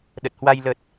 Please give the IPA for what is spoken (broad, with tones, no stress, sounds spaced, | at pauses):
ɗ ə˨˩ t̚ h w a˧ j l ə˨˩ t̚